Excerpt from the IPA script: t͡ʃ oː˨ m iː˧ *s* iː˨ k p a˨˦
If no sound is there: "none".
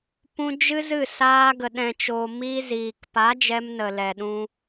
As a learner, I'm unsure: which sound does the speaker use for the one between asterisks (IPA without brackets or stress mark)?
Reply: z